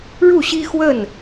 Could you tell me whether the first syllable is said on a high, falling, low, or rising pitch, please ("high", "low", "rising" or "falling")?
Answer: falling